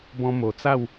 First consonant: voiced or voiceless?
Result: voiced